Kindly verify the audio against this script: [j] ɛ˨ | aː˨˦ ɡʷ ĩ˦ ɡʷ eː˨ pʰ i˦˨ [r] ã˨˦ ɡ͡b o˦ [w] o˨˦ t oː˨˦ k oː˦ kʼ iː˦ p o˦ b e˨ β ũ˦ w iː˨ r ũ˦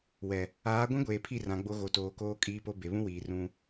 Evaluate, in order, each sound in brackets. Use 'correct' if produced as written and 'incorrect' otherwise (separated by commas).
incorrect, correct, incorrect